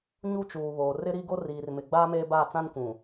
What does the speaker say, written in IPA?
ɲu˦t͡ʃuː˨βoː˨ rɪ˦ɾi˦ɡo˦ riː˨rmɪ˨ ɡ͡baː˦meː˦baː˦˨t͡sã˦n kʷũ˨

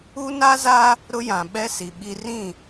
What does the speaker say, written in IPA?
u˦ na˦za˦ | ɾʊ˦jã˨ ɓɛ˦si˨ɓi˦ rĩ˦˨

